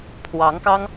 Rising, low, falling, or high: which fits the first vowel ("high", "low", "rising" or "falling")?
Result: rising